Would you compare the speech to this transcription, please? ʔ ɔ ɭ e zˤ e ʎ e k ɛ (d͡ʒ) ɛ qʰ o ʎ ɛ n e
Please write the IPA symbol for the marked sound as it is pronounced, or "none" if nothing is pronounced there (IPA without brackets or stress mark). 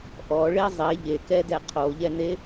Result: d